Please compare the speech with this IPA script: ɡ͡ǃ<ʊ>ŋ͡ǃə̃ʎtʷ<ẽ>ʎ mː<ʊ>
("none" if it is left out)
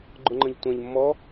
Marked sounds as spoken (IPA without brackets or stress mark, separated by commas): ʊ, ɛ̃, ɔ